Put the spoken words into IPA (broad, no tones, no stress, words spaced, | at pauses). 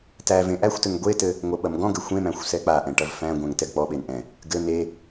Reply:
tæ vẽʔæxʷtɘŋ ɡʷetɘ | ŋʷɐɓɐmɡɔ̃ɡɘ xʷẽmæ̃xʷ sɛk͡paʔɛ̃ ʈɐvfæ̃ɡʷɛ̃ŋ tɛɡk͡pɔɓen ʔɛ̃ | ɡɘ ne